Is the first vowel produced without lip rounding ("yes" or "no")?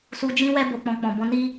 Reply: no